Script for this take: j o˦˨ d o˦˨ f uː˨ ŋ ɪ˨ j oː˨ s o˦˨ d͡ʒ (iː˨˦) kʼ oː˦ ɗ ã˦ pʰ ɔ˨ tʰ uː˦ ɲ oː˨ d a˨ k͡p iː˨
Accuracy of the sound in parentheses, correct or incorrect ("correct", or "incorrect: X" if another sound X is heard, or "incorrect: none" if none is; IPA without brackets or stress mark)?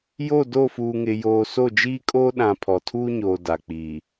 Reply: incorrect: iː˦